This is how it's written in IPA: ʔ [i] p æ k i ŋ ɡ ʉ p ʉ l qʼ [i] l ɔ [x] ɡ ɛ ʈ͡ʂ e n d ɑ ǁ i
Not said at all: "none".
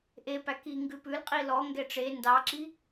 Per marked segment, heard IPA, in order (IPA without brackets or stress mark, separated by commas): e, i, ŋ